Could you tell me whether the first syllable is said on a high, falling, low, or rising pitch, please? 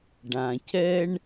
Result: low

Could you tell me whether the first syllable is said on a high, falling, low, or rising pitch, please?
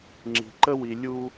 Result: low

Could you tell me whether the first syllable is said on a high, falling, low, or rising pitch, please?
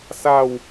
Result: falling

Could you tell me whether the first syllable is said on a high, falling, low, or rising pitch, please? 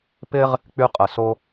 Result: high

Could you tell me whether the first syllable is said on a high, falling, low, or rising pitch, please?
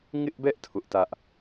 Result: high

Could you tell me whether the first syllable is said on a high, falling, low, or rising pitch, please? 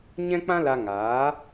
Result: high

